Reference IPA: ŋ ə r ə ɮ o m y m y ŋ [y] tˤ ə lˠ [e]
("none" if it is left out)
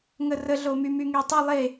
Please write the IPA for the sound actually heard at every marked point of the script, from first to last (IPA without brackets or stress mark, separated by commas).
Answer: e, e